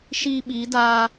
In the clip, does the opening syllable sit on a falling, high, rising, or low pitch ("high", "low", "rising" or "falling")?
high